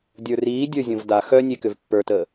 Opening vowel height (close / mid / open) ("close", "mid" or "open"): mid